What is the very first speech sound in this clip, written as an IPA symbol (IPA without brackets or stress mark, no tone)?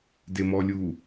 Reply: d